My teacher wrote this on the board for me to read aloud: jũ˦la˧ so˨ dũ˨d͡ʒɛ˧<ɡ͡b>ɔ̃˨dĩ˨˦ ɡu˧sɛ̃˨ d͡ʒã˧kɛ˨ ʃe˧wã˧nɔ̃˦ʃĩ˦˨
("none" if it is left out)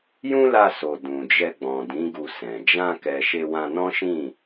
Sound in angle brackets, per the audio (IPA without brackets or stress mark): ɡ͡b